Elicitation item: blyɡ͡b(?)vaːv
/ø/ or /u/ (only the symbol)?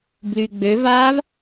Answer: ø